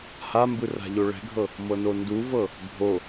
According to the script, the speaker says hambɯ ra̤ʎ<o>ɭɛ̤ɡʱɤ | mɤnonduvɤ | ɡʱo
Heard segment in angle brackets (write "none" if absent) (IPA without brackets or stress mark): o